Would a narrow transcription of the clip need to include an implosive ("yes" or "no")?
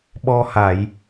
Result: yes